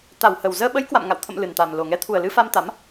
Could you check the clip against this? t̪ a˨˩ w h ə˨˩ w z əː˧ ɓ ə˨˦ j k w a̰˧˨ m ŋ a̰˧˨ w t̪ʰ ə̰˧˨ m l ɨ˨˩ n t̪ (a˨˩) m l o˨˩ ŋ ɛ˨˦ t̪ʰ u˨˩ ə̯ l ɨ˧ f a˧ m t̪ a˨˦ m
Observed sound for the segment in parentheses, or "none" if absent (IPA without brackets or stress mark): a˨˩